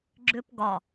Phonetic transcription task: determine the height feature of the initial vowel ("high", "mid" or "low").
high